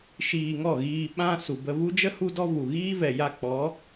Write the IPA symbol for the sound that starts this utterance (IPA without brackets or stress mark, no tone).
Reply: ʃ